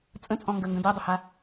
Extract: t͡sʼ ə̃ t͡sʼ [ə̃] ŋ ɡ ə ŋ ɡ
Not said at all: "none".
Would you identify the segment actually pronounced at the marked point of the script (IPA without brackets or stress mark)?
ɔ̃